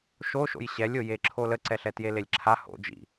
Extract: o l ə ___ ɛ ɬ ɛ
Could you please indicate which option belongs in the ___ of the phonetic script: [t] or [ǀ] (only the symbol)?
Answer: ǀ